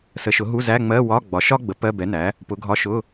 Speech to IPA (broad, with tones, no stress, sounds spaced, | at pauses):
s ə˩˥ ʃ ʊ˩˥ ɦ u˧˥˧ z æ˧˥˧ ŋ͡m ɜ˧˥˧ w ɒ˧˥˧ ɡ͡b ɒ˩˥ ʃ ɒ˥ ɡ͡b ə˩˥ p ɜ˧˥˧ b ɛ˩˥ n æ˩˥ | p ʊ˩˥ ɡʱ ɒ˧˥˧ ʃ ʊ˧˥˧